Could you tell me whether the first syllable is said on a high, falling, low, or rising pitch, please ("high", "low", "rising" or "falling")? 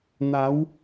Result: rising